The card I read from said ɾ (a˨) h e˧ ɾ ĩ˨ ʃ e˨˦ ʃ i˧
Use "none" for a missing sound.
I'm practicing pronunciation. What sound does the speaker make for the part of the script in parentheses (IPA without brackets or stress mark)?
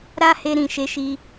a˦